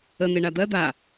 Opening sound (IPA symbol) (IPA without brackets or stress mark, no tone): ə